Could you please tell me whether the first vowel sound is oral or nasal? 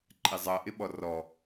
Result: oral